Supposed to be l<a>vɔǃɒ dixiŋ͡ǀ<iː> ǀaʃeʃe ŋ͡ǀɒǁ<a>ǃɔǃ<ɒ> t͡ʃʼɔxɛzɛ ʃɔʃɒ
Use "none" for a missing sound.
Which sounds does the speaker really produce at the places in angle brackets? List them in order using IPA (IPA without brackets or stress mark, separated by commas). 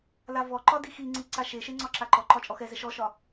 a, i, a, ɒ